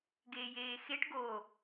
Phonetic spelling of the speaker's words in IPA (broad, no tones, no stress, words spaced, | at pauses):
ɡeːjeːxeʈ ɡo